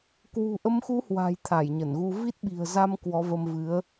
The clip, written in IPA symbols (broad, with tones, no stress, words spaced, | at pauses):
kwṳ˨˩ʔə˨˦mxu˨˦hwa̤˨˩j t̪ʰa˧˩jɲə˧˩nɣu˧ vi˦˥t̚ɓi̤˨˩ə̯ za˧m kwɔ˨˦və˧mvɨ˨˦ə̯